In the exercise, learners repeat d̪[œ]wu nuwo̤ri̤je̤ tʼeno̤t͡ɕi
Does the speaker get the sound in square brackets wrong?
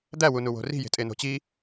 yes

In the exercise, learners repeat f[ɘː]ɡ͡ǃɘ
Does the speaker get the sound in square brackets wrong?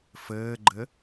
no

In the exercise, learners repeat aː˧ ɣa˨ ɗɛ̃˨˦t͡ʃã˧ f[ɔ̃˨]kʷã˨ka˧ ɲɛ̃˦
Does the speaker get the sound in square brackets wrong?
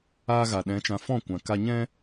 yes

